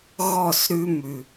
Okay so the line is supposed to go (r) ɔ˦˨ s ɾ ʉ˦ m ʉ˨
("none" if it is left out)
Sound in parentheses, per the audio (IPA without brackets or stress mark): ɣ